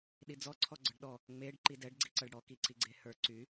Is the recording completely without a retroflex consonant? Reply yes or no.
no